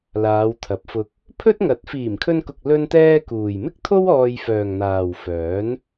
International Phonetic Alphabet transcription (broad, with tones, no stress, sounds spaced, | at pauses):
l aː˨˧ w t̪ʰ ɐ˨˥ p̚ f ʊ˧ k̚ | pʰ ɵ˥ t̚ ŋ ɐ˨˥ t̚ f iː˨˩ m kʰ ɵ˧ n k ʊ˨ k̚ l ɵ˥ n t̪ ɛː˥ k uː˨ j m ɪ˥ k̚ t̪ʰ o˥ w ɔː˧ j f œː˨ ŋ n̪ aː˨ w f œː˨˥ n